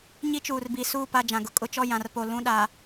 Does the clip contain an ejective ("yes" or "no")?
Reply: yes